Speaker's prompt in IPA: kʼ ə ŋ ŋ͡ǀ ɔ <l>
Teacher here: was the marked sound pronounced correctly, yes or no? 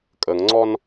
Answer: no